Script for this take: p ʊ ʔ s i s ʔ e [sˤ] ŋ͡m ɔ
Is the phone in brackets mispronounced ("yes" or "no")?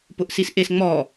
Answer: yes